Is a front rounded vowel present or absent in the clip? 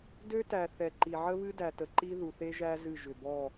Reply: present